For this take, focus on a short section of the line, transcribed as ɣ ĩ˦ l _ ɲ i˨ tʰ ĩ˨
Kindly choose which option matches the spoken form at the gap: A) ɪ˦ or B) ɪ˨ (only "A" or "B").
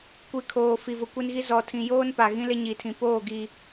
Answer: A